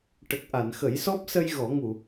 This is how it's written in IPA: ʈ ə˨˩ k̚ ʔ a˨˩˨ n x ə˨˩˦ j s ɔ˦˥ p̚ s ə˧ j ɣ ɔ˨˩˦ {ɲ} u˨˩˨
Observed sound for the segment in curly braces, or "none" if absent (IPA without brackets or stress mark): ŋ